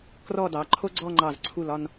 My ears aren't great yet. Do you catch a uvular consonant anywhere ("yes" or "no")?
no